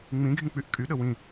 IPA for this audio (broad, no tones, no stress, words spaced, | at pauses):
ŋ͡mĩɡʱĩk͡pyʔ kʼyɗə wĩ